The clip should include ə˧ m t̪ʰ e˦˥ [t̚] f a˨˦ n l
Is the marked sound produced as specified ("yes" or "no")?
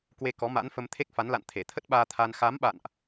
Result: no